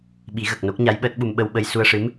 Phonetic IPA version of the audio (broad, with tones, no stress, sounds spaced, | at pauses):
ɓ i˨˩˦ ɣ ə˨˩ k̚ n o˦˥ k̚ ɲ a˧˥ j ɓ əː˦˥ t̚ ɓ u˧ m ɓ ə˧ w ɓ ə˧ j s u˧ ə̯ ʂ ɨ˧˥ m